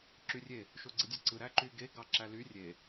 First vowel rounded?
yes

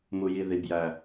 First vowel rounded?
yes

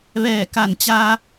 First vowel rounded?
no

